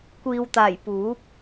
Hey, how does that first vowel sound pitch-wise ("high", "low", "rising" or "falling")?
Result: low